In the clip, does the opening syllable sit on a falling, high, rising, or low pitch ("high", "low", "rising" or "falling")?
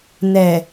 low